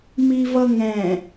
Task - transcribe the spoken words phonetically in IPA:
m i v ʌ ŋ ɛ̃

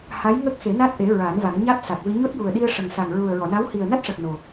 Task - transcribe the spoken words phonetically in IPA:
h a˧˥ j ŋ ə˦˥ k̚ x e˨˩˦ n a˦˥ t̚ ʔ e˨˩˦ ɹ a˨˩˦ n v a˨˩˦ ŋ ɲ a˦˥ t̚ s a˨˩ k̚ v ɨ˧ ɲ o˦˥ t̚ j u˨˩ ə̯ ɗ i˧ ə̯ ʂ ə˨˩ ŋ s a˨˩ ŋ ɹ u˨˩ ə̯ ɹ ɔ˨˩˨ n a˧˥ w h i˨˩ ə̯ n a˦˥ t̚ ʂ ə˨˩ k̚ n o˨˩

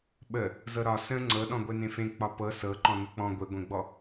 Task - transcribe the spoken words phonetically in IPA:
ɓ ə | z ɤ ɾ ɒ s ə̃ ŋ͡ǀ ɤ ɗ ɔ̃ ɡʷ e n ẽ f ẽ k͡p ɒ p ɤ s ɤ ǃ ɔ̃ n ə k͡p ɔ̃ ɡʷ e ɡʷ ẽ ɡ͡b ɔ

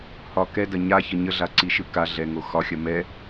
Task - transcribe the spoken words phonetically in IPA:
h ɒ k ɛ d ɐ ɲ a ç ə ɲ ə ɮ a ǀ i ʃ ɯ k a ɮ ɛ ŋ o x ɒ xʲ ɐ m ɛ

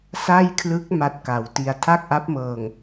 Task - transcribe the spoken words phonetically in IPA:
s a˥˩ j kʰ l ɯ˦˥ k̚ m a˥˩ t̚ k a˩˦ w t i˧ a̯ tʰ a˥˩ k̚ ʔ a˦˥ p̚ m ɤː˨˩ ŋ

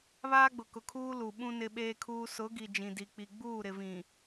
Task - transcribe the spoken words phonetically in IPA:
β aː˦ ɡ͡b ʊ˨ k ʊ˨ kʰ uː˦ l u˨ ɓ ũ˦ n ɪ˦ ɓ eː˦ kʰ uː˦ s ʊ˨˦ ɡ i˨ d͡ʒ ĩ˨ d i˨ k͡p i˨ ɡ͡b uː˦˨ ɾ ɪ˨ v ĩ˨

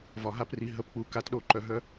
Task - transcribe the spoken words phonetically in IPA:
v ɒ˨ ɦ a˦ p r i˨ ɦ ə˨˦ p k͡p u˨ k a˨˦ t ɗ o˨˦ ǃ œ˨ ɦ œ˦

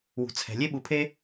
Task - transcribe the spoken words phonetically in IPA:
w ṳ˩ t͡sʰ ɛ̤˩ lʲ e˥ ɓ u˩ pʰ e˥

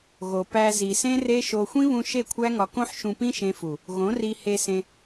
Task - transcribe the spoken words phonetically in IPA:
ɣ o˨ p æ˧ z i˨ s ẽ˦ r e˦ ʃ o˧ xʷ ĩ˦ β ũ˧ ʃ e˦˨ kʷʰ æ˦ ŋ ɒ˧ k õ˦ ħ ʃ ũ˧ p ĩ˦ ʃ ẽ˧ f u˨ | ɣ õ˨˦ r i˧ h e˧ s ẽ˧

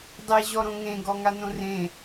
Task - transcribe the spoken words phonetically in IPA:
dˤ e ʑ ɔ ɾ õ ŋ ẽ ɡ ɔ ŋ a n õ r ẽ

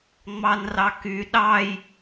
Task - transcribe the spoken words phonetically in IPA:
ŋ͡m ɑ n r ɑ k y ɗ ɑ j

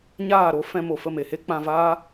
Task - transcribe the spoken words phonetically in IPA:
ɲ aː˦˨ ɾ o˦ f ɛ̃˧ m o˨ f ə˦˨ m e˨ h e˦ k͡p ã˧ v aː˦

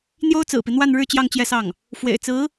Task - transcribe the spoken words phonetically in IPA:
n̪ j o˥ ʊ̯ t͡s ɹ̩˨˩ p i˦ n̪ w a˥˧ n ɻ ɻ̩˥˧ t͡ɕ j ɑ˥˧ ŋ t͡ɕ j ɛ˥˧ s ɑ˥˩ ŋ | f w ḛ˨˩ ɪ̯ t͡s ɹ̩˧˥

